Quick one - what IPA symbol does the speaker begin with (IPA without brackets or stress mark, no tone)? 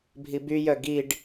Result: bʱ